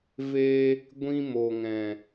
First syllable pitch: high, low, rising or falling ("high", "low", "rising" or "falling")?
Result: high